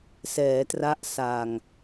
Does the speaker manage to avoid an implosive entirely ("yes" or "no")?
yes